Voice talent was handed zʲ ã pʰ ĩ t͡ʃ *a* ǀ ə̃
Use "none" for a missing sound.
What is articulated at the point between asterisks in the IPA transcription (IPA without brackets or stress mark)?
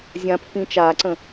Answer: a